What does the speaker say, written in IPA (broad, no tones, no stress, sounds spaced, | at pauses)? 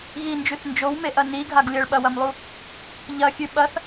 ɣ i n d͡ʒ ʉ θ n d͡ʒ o w m e ʔ ɐ n i ɡʱ a ɡ lʲ ɐ ɭ ɓ ɐ w ɐ m lˠ u | ʎ ɐ xʲ ʉ ɓ ɐ θ